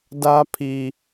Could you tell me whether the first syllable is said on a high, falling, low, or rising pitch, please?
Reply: high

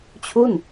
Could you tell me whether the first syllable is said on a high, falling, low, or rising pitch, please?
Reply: falling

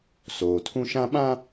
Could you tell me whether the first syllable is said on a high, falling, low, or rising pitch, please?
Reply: low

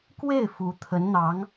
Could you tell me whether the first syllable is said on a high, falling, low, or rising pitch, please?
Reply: falling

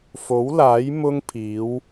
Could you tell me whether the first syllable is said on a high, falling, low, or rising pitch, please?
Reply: rising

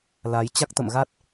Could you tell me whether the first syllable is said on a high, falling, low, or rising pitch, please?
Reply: rising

